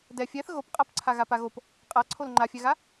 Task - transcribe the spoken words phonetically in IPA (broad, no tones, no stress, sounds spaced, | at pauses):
d ɛ fʲ ɛ θ ɣ o p qʼ a p ǀʰ a ɣ a p a ɣ o p | qʼ a ǀʰ o l ŋ͡ǃ a fʲ ɛ ɣ a